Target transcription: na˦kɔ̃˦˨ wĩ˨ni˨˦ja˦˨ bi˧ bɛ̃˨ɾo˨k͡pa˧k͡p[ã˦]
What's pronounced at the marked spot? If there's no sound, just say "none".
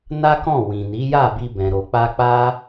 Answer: a˦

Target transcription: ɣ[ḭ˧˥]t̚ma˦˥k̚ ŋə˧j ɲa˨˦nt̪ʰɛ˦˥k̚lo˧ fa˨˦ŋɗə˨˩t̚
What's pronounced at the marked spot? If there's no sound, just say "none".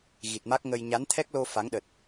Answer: i˨˩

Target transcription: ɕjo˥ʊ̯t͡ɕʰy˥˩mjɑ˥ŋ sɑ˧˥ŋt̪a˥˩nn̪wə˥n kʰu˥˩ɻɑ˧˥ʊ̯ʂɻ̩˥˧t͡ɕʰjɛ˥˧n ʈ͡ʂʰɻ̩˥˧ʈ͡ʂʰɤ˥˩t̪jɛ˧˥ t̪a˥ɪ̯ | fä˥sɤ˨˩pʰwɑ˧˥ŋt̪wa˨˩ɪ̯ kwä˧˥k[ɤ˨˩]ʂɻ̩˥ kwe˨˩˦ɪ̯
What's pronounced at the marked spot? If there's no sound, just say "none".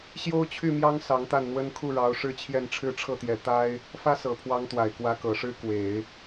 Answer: ɤ˨˩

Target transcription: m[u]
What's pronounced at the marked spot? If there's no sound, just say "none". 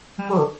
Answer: ʊ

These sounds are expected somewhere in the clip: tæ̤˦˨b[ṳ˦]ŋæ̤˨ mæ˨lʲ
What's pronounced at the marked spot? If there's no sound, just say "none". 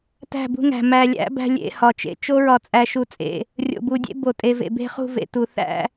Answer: ṳ˦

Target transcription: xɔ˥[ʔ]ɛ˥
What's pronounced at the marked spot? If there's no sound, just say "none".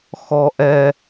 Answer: ʔ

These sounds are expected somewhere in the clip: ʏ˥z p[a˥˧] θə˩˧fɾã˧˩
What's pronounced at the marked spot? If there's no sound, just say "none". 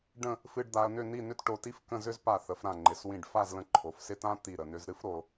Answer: a˧˩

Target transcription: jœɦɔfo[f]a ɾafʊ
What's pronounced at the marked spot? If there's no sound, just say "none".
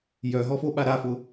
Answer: ɓ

